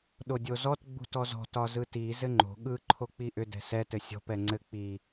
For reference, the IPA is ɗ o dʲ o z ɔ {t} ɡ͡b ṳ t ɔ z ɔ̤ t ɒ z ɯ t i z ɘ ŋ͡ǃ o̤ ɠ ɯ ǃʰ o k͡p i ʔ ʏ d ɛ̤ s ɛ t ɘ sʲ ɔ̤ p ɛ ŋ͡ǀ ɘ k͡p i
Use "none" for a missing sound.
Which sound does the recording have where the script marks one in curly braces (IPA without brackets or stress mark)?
t